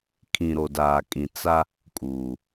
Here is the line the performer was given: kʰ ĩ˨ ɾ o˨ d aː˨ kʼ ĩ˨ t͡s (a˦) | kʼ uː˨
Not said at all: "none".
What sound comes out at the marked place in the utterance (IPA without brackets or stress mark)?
a˦